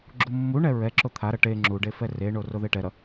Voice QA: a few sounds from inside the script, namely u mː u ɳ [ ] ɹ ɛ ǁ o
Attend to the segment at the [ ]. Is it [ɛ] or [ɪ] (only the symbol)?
ɛ